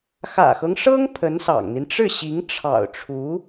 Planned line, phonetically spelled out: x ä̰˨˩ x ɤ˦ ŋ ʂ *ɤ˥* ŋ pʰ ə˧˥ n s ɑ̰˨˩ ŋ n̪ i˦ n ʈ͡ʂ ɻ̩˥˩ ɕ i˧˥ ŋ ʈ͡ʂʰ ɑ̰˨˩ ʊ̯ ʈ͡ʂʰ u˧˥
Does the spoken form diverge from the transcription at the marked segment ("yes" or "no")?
no